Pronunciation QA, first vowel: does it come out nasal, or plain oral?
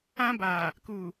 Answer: nasal